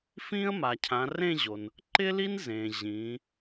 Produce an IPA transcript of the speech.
f ĩ˥ ə̯ m a˩ cʰ ã˩˧ r ẽ˥˧ ʑ o˩ n | ǃ ɪ˥ l i˥ n z ẽ˩ ʑ ĩ˩˧

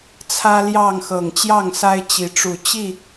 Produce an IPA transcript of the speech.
t͡sʰ ä˦ l j ɑ˥˨ ŋ x ɤ˨˩ ŋ t͡ɕ j ɑ˥˨ ŋ s a˦ ɪ̯ t͡ɕ i˨˦ ʈ͡ʂ u˨˩ t͡ɕ i˥˨

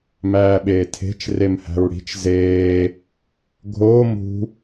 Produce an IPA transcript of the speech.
m æː ɓ eː tʰ e̤ t͡ʃ r e m h æ̤ ɹ ɽ i̤ t͡ʃ z eː | ɡʱ oː m ṳ

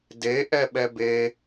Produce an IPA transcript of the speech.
d e ʔ ɛ ɓ ɛ b e

